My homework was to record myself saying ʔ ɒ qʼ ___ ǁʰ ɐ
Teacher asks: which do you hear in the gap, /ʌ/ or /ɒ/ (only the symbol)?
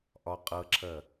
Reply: ʌ